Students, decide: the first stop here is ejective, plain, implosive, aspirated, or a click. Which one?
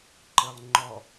click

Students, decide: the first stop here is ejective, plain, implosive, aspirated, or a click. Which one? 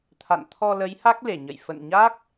aspirated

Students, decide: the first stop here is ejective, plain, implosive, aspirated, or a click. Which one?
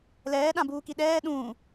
implosive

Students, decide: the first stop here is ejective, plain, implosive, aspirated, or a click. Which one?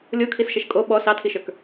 aspirated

